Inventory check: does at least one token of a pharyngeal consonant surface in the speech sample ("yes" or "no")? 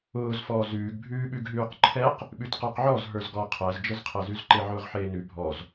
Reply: yes